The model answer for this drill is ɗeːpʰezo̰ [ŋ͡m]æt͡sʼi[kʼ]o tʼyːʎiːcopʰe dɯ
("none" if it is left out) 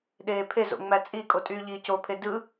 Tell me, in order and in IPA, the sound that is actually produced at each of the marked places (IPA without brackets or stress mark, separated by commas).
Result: ŋ͡m, kʼ